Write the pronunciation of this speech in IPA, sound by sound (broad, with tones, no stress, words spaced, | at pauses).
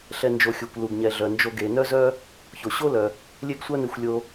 ɬɛ˨ nd͡ʒo˨xʲu˩kʷ lu˩ɡ ɲɛ˩ɮœ˩nd͡ʒo˨ ɡe˩nœ˦zœ˦ | ço˩ɕo˥lœ˩ | lʲe˦ɡsʷœ˦ne˨xʷ lʲo˨